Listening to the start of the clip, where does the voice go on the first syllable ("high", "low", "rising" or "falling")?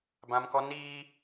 high